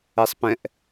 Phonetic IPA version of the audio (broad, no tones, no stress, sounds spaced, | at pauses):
ɛ sˤ p ɛ̃ ʔ